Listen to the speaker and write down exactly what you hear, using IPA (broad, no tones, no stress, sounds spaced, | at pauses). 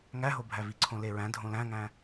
ŋ æ ɦ o bʱ æ v i ǀʰ õ l e ɹ æ̃ dʱ õ l æ̃ ŋ æ̃